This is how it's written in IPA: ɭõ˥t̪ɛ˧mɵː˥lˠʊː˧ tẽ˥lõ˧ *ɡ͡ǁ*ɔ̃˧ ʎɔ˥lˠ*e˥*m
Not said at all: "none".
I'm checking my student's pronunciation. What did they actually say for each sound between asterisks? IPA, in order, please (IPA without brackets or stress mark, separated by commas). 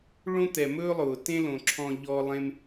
ǁʰ, ẽ˥